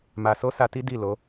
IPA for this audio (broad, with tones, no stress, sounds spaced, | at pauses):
m a˧ s o˦ s a˧ t i˦ d i˦˨ l o˨˦